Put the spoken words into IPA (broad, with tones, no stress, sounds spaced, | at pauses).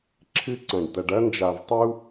ǁʰ ɨ˦ ǀ ɐ̃˨ ɖ d̪ ɐ˨ ɖ ɐ˦ n d͡ʒ a˨ v tˤ u˦